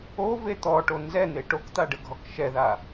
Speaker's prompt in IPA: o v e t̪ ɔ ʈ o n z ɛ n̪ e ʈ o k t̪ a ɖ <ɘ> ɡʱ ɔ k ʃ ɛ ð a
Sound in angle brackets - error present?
no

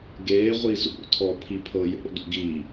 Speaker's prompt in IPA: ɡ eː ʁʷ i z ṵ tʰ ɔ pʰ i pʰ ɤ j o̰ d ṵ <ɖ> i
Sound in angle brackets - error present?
yes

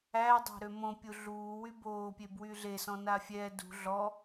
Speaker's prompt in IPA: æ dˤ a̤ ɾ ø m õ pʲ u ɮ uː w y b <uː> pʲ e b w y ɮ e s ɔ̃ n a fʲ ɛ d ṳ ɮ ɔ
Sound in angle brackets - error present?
yes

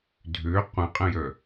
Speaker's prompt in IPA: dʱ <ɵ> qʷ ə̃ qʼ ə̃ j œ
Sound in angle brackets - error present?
yes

